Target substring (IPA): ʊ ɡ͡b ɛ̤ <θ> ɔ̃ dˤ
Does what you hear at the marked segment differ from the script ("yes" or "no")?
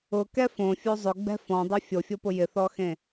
yes